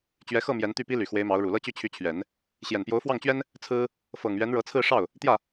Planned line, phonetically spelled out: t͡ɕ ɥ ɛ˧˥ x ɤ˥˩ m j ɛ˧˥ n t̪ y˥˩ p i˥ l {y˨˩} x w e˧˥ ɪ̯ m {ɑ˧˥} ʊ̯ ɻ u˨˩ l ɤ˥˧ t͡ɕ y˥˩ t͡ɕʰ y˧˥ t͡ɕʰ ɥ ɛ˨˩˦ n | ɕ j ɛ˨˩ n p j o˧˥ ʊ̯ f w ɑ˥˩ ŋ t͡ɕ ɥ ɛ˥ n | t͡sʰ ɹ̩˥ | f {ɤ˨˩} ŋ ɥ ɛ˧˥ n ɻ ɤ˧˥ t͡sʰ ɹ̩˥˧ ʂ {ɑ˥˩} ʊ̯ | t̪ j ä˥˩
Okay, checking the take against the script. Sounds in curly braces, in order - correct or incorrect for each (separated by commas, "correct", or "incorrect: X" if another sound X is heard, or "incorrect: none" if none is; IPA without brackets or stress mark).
correct, correct, correct, correct